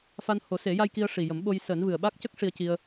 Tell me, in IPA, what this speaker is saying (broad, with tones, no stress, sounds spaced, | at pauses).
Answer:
f a˧ n h o˨˩˦ s e˨˩˦ j a˧ j k i˧ ə̯ ʂ i˨˩ j ə˨˩˦ m ɓ o˧ j s əː˨˩˦ n v ɨ˨˩ ə̯ ɓ a˦˥ k̚ c ə˦˥ k̚ ʂ i˧ ə̯ c i˧ ə̯